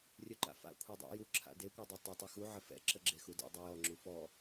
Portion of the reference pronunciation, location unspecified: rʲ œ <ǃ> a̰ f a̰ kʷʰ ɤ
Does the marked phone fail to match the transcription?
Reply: no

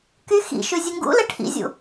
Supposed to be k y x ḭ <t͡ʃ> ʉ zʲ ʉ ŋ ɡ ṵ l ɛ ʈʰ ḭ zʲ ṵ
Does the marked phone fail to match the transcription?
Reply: yes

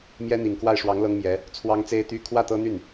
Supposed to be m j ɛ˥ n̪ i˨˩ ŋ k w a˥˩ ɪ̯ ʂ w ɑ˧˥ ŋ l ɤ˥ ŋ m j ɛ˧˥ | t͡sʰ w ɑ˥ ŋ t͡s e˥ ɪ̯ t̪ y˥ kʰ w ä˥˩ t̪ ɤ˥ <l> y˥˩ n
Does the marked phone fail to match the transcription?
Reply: yes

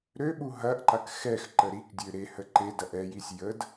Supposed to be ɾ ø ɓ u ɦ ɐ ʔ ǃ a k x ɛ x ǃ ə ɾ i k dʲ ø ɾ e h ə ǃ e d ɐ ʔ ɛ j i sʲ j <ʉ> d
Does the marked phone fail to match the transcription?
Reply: yes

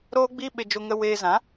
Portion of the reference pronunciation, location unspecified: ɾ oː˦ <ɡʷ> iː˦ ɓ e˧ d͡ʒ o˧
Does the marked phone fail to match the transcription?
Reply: yes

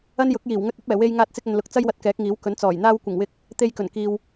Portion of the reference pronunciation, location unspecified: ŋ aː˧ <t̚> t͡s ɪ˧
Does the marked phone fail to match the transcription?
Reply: no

